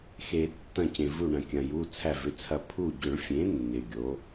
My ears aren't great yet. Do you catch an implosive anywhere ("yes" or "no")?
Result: no